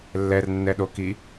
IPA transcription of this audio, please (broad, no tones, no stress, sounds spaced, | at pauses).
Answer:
lː ɛ r nː ɛ ɗ o k i